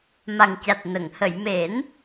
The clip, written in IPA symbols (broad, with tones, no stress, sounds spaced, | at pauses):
m a˨˩ ŋ c a˨˩ t̚ n ə˨˩˨ ŋ h ə˨˩˨ j m e˨˩˦ n